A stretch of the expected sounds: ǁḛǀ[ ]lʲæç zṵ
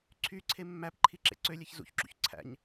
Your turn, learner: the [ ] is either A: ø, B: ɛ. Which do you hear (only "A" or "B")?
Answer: A